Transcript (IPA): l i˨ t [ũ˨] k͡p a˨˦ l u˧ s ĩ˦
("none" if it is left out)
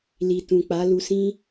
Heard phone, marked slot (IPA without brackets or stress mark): ũ˨